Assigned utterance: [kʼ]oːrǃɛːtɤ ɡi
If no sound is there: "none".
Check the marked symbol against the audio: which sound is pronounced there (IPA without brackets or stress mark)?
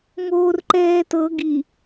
ŋ